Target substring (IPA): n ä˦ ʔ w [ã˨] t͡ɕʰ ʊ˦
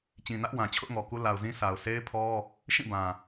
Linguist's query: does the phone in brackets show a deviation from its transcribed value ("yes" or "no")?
no